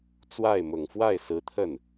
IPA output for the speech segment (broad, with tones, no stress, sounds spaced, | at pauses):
t͡s w a˥˩ ɪ̯ m ʊ˨˩ ŋ f w a˥˩ ɪ̯ s ɹ̩˧˥ t̪ʰ ə˥˩ n